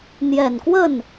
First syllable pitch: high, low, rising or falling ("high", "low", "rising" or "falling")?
low